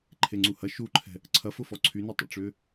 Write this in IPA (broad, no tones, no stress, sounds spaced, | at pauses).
ǃʰ e ŋ͡ǀ u h ɐ ʃ u ǃʰ ɛ̤ | ǀʰ ɐ f ʊ f ɔ ǀʰ y n u tˤ ə̰ ʈ͡ʂ ʏː